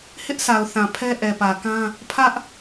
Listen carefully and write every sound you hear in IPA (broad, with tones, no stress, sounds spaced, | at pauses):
h ɪ˦ ʔ s a˨ ʊ̯ θ ã˨ pʰ ɛ˦ ʔ ɛ˨ p ä˨ k ã˦ | pʰ ä˦ ʔ